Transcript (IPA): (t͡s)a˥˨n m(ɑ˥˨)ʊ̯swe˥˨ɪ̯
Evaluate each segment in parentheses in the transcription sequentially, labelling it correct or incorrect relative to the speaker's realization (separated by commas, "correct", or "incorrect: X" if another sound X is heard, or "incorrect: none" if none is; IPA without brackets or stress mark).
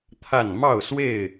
incorrect: t̪ʰ, correct